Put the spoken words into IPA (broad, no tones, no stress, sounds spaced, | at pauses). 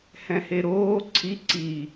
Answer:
h ɛ̃ h e ɾ oː ǀʰ i ǀ i